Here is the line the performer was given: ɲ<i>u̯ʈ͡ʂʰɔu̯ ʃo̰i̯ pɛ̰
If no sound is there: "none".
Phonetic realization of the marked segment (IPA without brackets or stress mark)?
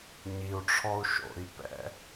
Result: i